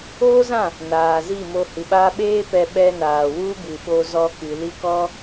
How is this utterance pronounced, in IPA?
oː˦zã˦˨ | naː˨ zi˦˨mo˧ hɨ˨ɓaː˧ɓeː˦ pɛ˧ ɓɛ˧naː˨ wu˦bɨ˨ɓo˧zɔ˧ kɨ˨li˦kɔ˦

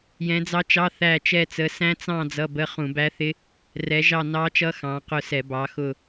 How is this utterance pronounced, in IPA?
jɛ̃˨˦d͡zɑ˦˥t͡ʃɑ˧˥˧θæ˦˨ t͡ʃɛ˦˨t͡sə˨˦sæ̃˦˥ t͡sɑ̃˦˨ d͡zʌ˧˥˧bə˧˥˧ χũ˧˩˧bæ˦˥θɪ˦˥ | rɛ˨˦ʒɑ˦˨ nɑ˦˥t͡ʃʌ˦˥ xɑ̃˨˦ qʊ˦˨sɛ˧˩˧ bɑ˨˦xʊ˦˨

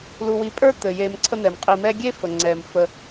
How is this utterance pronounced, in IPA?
lu˨wi˨pʼə˞˥ t̪ɘ˩ je˨mǀʰə˦n̪ɛ˩mqʼi˨ mɛ˦ɡʲe˥ fə˩ŋ͡ǀɛ˩m fə˨

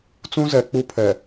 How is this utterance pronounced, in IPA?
t͡sũ˦zɛ˨ k͡pu˦pʰɛ˨

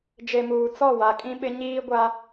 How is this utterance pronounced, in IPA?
d͡ʒe˨muː˨ t͡sɔ˦˨wa˨ kʼĩ˦ɓɪ˦ ɲiː˦ɡʷa˦

